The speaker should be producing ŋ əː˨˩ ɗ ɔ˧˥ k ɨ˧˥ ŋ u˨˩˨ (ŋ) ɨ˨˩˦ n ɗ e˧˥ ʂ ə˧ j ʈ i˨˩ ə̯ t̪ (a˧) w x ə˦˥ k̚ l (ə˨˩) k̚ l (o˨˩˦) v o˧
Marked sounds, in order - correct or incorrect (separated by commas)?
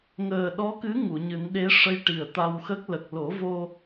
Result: incorrect, correct, correct, correct